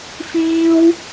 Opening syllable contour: high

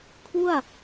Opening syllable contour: falling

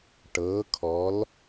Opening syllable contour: rising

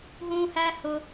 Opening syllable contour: low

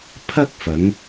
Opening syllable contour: high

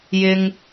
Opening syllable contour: high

